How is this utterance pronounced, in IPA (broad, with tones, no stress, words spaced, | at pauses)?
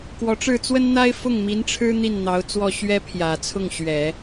kwɔ˧˥ʈ͡ʂɻ̩˥˩ t͡swə˥nn̪a˥ɪ̯ fʊ˥˩ŋmi˧˥nʈ͡ʂʰɻ̩˥ n̪i˥˩nn̪ɑ˧˥ʊ̯t͡swɔ˥˩ ɕɥɛ˥pʰjä˨˩t͡sʰʊ˥˩ŋ ɕɥɛ˨˩˦